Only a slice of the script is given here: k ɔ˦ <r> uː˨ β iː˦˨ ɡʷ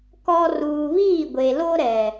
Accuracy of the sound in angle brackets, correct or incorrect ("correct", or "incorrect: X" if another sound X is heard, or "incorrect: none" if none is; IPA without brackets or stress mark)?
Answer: correct